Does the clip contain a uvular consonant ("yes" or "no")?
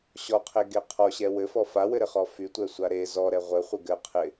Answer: yes